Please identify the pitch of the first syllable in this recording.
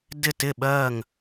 falling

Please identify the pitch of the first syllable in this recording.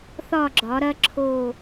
falling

